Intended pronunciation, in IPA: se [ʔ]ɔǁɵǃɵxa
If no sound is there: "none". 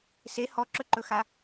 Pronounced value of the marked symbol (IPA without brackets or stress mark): h